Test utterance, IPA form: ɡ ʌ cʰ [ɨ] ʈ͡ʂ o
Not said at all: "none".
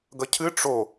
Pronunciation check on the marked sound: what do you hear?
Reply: ɨ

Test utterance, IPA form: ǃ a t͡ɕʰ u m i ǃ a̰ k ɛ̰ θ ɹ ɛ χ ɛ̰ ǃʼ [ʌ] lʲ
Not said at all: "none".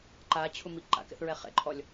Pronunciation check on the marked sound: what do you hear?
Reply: ɔ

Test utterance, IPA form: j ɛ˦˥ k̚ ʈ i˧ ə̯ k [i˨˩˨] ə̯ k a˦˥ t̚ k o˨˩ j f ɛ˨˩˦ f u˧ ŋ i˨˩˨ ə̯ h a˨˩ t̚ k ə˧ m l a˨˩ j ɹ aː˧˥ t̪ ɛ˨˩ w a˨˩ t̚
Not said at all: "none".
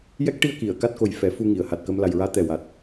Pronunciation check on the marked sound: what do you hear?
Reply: i˨˩˨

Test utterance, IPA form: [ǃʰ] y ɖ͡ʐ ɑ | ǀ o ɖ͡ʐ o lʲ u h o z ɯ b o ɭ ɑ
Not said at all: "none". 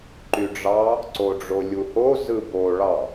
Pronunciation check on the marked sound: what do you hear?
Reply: ǃ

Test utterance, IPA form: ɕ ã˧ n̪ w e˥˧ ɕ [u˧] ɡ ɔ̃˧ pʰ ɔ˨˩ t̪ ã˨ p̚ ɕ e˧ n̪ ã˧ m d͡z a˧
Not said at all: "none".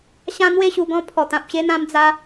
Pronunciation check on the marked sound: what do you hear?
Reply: u˧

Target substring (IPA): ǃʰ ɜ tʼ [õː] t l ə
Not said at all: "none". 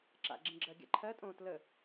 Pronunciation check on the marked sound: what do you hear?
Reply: õː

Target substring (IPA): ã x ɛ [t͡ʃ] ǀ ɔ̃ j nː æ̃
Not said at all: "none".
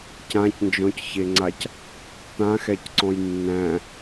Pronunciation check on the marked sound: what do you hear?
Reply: c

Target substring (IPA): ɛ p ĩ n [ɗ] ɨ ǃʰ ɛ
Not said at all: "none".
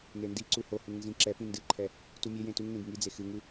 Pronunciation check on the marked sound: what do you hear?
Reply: d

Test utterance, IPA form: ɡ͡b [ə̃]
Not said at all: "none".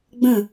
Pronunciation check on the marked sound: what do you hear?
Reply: ə̃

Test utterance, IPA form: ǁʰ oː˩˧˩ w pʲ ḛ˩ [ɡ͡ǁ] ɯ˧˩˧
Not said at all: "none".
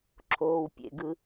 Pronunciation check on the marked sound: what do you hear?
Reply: ɡ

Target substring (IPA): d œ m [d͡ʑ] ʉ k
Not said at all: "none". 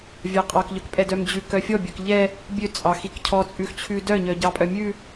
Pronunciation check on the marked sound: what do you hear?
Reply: d͡ʑ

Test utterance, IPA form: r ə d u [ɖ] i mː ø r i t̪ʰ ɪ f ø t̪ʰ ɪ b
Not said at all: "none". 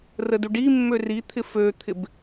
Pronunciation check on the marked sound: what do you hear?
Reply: ɖ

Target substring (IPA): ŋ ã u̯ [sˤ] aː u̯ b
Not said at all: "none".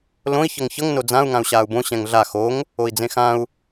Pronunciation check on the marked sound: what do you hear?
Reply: ɕ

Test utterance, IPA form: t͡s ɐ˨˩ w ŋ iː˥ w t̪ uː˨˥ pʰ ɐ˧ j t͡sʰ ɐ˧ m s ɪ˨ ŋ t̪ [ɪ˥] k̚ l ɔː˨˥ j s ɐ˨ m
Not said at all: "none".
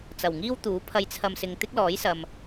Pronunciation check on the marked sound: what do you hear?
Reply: ɪ˥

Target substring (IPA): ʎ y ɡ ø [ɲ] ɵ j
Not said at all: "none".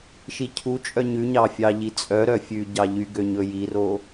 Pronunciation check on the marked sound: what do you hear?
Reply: ɲ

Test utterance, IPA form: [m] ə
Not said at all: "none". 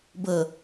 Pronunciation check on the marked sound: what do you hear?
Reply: b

